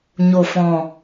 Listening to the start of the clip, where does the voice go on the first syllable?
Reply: low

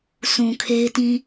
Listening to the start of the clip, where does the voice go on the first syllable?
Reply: low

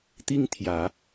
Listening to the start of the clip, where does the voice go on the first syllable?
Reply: high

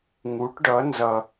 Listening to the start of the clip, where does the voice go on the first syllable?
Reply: rising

